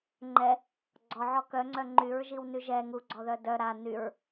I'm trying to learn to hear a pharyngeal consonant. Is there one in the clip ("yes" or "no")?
yes